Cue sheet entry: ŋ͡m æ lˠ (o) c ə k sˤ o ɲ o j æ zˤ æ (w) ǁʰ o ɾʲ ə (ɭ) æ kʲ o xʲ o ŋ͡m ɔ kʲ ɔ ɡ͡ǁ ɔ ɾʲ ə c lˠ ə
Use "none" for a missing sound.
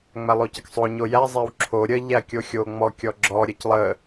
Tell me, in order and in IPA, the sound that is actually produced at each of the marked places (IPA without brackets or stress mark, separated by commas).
o, w, ʎ